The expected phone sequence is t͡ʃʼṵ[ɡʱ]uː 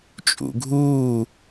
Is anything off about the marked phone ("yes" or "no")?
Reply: no